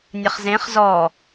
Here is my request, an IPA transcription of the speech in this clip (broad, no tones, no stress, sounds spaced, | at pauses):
nʲ ə χ z ẽ χ z ɔ